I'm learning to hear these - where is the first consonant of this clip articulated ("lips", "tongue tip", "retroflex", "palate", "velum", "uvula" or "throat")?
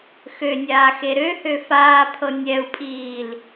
velum